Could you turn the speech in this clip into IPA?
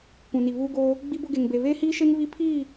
kʷ ũ˨ n i˨ β uː˦ ɡ oː˦ | ɡ͡b i˦ b ʊ˦ ɡ e˨ ŋ b e˨ β eː˦ h iː˦ ʃ e˦ ŋ β i˦ pʰ iː˦˨

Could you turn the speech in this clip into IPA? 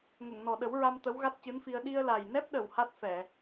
ŋ ə˨˩˨ ŋ n ɔ˨˩ ɗ ə˨˩˦ w ɹ a˧ m t̪ ə˧˥ w ɣ a˦˥ t̚ c ɨ˧˥ n f i˧ ə̯ ɗ i˧ ə̯ l a˨˩ j n ɛ˦˥ p̚ ɗ ə˨˩ w h a˦˥ t̚ f ɛ˨˩˨

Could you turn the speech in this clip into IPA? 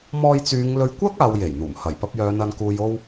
m ɔː˧ j t͡s yː˨˧ ŋ l ɵ˧ ɥ kʷ ɐ˥ k̚ aː˨˧ w j e˨˩ j n̪ uː˨˩ m h ɐ˨˩ j p ɐ˧ p̚ j œː˨˧ n ɐ˨ n k uː˨ j o˧ w

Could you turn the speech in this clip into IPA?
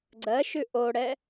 ɡ͡ǀ ɜ ʃ ʉ ʔ o ɽ ɛ

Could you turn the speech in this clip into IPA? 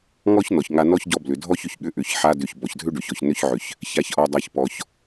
ŋ ɔ˦ ç n ɔ˨ ç ŋ a˧ n ɔ˦ ç ɟ ɔ˧ b l ʏ˨ dʱ ɔ˦ ç ʏ˨ ç ɠ ʏ˦ ʔ ʏ˨˦ ç ħ a˦ d ʏ˧ ç b ɔ˨ ç dʱ ʏ˦ ɖ ʏ˨ ç ɔ˨ ç n ʏ˦ ç ʕ ʏ˧ ç | ç a˧ ç ʔ ɔ˧ dˤ a˧ ç p ɔ˧ ç

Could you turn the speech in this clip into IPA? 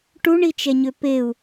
ʈ u ɳ i t͡ʃ ɛ ɲ ø p e u̯

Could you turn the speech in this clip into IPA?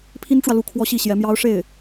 pʰ i˥ n ʈ͡ʂ w ä˨ l u˥˩ kʰ w ɔ˥ ɕ i˥˩ ɕ j ɛ˧˥ m j ɑ˥ ʊ̯ ʂ e˥˩ ɪ̯

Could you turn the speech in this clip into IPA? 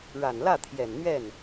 ɻ a˨˩ n l ä˥˩ t̪ʰ j ɛ˨˩ n n̪ ɥ ɛ˥˩ n

